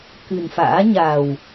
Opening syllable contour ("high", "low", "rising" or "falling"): low